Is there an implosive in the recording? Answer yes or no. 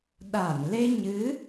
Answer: yes